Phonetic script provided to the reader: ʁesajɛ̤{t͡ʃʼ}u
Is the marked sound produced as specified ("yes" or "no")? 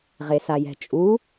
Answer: yes